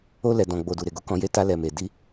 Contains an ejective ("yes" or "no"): no